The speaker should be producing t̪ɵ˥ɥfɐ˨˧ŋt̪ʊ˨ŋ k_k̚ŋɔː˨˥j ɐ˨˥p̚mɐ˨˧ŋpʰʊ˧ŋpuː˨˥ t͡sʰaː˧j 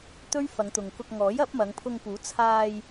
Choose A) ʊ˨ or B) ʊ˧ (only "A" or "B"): B